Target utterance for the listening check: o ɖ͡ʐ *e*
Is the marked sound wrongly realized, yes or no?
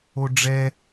yes